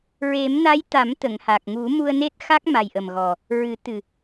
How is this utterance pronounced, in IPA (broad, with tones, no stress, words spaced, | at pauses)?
ɹe˨˩˦mna˧˥j t̪a˨˩˦mt̪ə˨˩˨ŋha˨˩k̚ŋu˨˩˦ mu˧ə̯ne˦˥t̚xa˦˥k̚ ma˨˩jʔə˨˩mɣɔ˨˩ | ɹɨ˨˩˦ t̪ɨ˨˩